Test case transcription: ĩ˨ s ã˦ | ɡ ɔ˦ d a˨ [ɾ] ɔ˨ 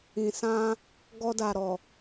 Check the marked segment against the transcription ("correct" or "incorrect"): correct